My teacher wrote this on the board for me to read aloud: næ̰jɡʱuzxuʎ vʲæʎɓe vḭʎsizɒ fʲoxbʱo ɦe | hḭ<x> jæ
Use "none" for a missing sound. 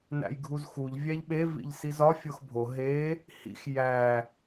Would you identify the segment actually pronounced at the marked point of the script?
x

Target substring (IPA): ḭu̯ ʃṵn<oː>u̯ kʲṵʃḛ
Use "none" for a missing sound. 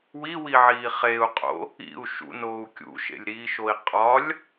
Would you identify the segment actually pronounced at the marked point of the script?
oː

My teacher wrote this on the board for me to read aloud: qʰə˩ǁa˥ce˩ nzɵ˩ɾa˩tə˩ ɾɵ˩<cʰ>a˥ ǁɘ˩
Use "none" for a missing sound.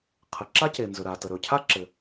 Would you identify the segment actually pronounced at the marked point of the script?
cʰ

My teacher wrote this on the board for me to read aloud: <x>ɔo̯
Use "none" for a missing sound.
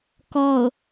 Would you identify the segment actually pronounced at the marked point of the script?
k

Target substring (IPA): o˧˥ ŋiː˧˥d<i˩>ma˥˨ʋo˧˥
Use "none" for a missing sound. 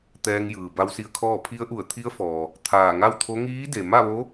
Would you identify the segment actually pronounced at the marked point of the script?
e˩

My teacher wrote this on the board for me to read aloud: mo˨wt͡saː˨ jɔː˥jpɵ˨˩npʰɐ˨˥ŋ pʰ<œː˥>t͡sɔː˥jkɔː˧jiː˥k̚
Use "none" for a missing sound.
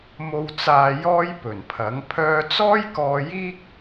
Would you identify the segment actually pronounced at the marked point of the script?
œː˧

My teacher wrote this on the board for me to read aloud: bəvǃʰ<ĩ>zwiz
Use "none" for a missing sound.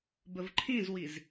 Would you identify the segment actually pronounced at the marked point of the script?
ĩ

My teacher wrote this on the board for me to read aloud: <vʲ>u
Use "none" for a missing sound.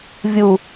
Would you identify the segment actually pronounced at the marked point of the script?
vʲ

